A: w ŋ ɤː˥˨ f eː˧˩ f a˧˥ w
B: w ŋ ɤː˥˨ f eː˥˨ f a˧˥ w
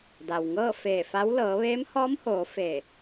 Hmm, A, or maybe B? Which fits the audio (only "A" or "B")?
A